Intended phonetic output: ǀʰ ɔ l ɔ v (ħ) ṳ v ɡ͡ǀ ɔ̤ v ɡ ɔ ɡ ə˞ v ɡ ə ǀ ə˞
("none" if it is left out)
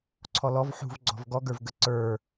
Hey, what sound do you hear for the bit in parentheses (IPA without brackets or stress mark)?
ħ